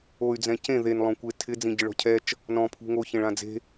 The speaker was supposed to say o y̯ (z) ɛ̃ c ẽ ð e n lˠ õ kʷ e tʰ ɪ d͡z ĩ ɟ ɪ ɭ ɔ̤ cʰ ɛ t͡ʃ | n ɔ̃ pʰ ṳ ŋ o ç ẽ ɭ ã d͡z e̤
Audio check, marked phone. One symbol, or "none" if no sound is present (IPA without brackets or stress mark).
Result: d͡z